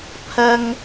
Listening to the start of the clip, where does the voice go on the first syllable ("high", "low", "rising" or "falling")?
high